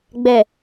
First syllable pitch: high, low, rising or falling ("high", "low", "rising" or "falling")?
low